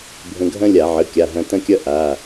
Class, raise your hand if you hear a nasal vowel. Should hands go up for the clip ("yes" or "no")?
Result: yes